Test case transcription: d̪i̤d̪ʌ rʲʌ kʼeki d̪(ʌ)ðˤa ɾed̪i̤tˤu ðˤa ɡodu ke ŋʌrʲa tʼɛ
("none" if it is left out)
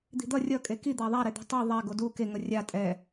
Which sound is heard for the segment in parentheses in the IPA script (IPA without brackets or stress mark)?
a